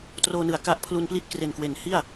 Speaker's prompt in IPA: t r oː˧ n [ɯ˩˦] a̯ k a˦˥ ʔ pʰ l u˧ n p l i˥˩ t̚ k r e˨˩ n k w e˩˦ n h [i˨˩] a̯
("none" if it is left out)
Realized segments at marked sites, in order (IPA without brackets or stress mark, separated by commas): ɯ˩˦, i˥˩